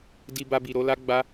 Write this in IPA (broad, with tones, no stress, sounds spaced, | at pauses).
d i˧ b a˧ b i˨ ɾ o˨˦ l a˦ ɡ͡b a˦